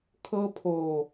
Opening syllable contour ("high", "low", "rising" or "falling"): high